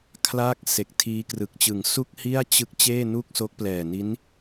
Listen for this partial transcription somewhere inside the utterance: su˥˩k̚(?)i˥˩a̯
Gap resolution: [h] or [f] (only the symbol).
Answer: h